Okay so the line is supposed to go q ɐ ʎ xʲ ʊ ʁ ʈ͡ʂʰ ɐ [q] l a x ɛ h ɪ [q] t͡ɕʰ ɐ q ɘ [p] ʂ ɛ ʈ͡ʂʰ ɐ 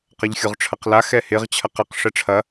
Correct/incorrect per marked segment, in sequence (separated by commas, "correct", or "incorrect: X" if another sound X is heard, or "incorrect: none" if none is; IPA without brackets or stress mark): correct, incorrect: ʁ, incorrect: q